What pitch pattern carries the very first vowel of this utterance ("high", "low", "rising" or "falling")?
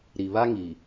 low